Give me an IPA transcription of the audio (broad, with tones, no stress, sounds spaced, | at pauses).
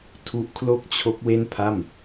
tʰ u˦˥ ʔ kʰ l o˥˩ k̚ t͡ɕʰ o˦˥ k̚ w e˥˩ n pʰ a˥˩ m